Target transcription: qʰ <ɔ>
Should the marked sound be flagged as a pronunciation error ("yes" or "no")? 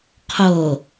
yes